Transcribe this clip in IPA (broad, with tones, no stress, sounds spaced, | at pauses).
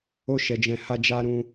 o˦ ʃ ɛ˧ d͡ʒ ɛ̃˧ h a˧ d͡ʒ a˧ ɾ ũ˧